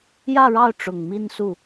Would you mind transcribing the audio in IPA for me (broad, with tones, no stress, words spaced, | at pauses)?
jä˥˧ɻɑ˥˩ʊ̯ ʈ͡ʂʊ˨˩ŋ mi˥˧nsu˥˩